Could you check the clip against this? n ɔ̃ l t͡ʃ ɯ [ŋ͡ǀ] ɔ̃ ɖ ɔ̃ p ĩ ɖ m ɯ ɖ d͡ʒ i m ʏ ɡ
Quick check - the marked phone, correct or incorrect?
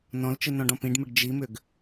incorrect